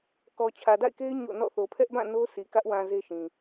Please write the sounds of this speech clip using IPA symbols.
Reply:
k ɔ˨ t͡ɕʰ ä˨ d a̰˦˨ ɪ̯ k e˦ ɪ̯ ɲ o̰˦˨ n ɔ̰˦˨ θ o˨ pʰ ɛ˦ ʔ b ã˦˨ n o˦ sʰ i˨ k ä˦ ʔ w ã˨ z e˦ ʃ ĩ˨

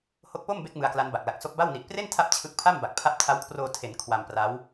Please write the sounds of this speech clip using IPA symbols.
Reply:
h o˦˥ k̚ p o˥˩ m b e˦˥ k̚ m ɯ˧ a̯ k l a˦˥ n b a˨˩ k̚ l a˨˩ k̚ s o˦˥ k̚ b a˥˩ w n i˨˩ ʔ p r e˥˩ n tʰ a˦˥ p̚ t͡ɕʰ ɯ˦˥ k̚ pʰ a˥˩ m b a˨˩ k̚ pʰ a˦˥ p̚ tʰ a˦˥ w kʰ r oː˧ tʰ e˩˦ n kʰ w a˧ m p r a˦˥ w

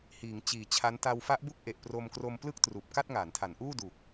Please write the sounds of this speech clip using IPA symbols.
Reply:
h iː˩˦ ŋ t͡ɕ iː˨˩ t͡ɕʰ a˦˥ n t a˧ w f a˦˥ ʔ b u˥˩ k̚ ʔ e˨˩ ʔ p r o˧ m k r o˧ m p l ɯ˥˩ k̚ t r uː˨˩ p̚ k a˥˩ t̚ ŋ a˩˦ n tʰ a˩˦ n ʔ uː˥˩ d u˨˩ k̚

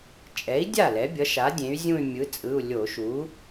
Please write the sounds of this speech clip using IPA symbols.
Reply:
t͡ʃʼ ɛ˩˥ i̯ dʲ a˥˩ l ɛ˩˥ bʲ ʌ˩˥ ʃ a˩˥ dʲ ẽ˩˥ y̯ zʲ ũ˥˧ y̯ mʲ ɯ˩˥ t͡sʼ ɯ˩˧˩ u̯ lʲ o˧˩˧ ʃ u˩˥

